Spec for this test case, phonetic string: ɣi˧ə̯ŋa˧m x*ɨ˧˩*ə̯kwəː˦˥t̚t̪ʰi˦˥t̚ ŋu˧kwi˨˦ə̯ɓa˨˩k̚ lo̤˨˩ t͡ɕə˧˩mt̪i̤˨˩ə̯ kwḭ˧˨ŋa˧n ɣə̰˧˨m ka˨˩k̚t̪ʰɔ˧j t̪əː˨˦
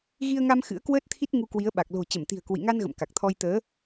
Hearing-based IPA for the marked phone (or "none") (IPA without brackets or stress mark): ɨ̰˧˥